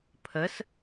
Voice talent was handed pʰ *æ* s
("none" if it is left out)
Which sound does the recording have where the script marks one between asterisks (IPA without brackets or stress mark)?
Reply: ə